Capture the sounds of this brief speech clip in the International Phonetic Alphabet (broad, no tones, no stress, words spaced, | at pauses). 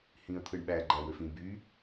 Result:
hĩə̯t̪ʰɯɳɓæ ɡ͡ǃæwøfĩb y